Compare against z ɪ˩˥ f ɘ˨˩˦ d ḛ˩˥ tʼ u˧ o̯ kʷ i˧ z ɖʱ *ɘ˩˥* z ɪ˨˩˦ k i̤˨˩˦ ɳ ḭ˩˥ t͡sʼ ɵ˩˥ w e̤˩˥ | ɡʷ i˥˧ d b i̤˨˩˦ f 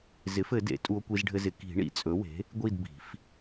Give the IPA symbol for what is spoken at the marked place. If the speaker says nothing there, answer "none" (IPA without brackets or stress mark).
ɘ˧